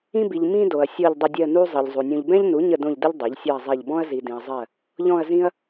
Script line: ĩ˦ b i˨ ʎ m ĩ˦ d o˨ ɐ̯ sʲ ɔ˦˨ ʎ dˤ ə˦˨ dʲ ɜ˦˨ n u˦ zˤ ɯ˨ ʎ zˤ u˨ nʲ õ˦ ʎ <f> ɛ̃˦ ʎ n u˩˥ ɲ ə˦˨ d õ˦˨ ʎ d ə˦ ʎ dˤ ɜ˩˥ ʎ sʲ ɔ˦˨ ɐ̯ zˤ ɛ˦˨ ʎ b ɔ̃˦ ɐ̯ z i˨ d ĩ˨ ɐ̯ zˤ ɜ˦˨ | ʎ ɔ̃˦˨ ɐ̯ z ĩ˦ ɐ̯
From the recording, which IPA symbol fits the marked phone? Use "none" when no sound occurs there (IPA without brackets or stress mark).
b